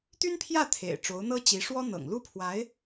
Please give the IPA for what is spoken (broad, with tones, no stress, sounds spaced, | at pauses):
t̪ y˥ n pʰ j ä˥˩ t̪ʰ ḛ˨˩ ɪ̯ ʈ͡ʂ o˧˥ ʊ̯ n̪ ɤ˥ t͡ɕ i˧˥ ʂ w ɔ˥ n̪ ɤ̰˨˩ ŋ l u˥ pʰ w a˧˥ ɪ̯